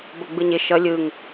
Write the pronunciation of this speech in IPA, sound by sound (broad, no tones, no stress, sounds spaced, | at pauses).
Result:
b ʌ ɡ͡b ɯ ɲ ɪ ʃ ʌ lʲ ɯ ŋ